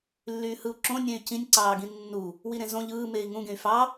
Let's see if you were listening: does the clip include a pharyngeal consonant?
no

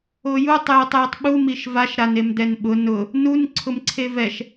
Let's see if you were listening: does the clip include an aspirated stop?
yes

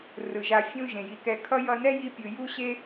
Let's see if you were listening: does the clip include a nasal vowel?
yes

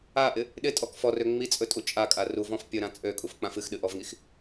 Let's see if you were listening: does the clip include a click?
no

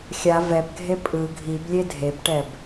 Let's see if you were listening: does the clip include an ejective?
yes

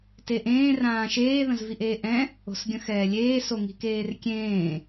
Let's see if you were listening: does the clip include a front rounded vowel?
no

